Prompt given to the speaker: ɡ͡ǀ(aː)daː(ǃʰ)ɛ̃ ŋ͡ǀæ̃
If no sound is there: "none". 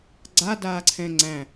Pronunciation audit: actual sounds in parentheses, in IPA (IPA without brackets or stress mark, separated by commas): a, ǀʰ